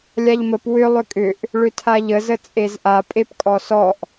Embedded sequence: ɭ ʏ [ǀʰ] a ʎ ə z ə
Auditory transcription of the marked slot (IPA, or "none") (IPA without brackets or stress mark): tʰ